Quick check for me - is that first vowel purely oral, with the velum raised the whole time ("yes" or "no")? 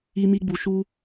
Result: yes